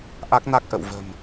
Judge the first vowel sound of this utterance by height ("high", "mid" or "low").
low